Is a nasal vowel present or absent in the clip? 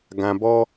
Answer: present